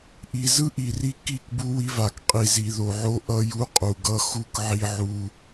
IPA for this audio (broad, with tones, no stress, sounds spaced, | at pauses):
ʔ i˨ z ɯ˦ ʔ i˨ r i˦ k i˦˨ k b u˦ w i˦ v a˨ k qʼ i˨ z i˨ ð o˨ ʕ o˦ ʔ ʌ˦ j u˦ qʼ u˨ ɡ ʌ˦ x u˦ k ʕ i˦ ʕ u˦